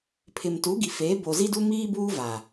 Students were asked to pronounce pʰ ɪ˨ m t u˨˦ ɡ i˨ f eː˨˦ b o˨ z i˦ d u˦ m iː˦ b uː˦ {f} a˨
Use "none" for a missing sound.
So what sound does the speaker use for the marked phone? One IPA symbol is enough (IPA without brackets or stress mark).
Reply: v